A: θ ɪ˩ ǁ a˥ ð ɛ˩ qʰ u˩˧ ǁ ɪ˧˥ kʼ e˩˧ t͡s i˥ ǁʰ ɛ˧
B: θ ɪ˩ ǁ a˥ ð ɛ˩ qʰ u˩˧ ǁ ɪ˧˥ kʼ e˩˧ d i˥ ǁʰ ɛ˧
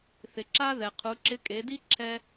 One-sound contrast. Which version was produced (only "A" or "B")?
B